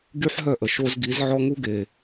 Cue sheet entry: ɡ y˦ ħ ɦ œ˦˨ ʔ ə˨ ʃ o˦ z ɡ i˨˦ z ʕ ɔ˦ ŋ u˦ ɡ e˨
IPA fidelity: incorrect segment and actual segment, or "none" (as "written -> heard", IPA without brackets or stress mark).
none